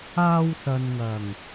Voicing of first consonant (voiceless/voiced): voiced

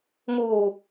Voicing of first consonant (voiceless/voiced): voiced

